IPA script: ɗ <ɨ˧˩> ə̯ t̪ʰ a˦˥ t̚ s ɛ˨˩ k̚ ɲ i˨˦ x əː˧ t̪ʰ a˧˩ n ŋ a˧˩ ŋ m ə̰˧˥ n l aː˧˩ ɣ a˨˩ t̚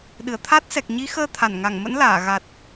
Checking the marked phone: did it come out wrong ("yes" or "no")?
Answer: no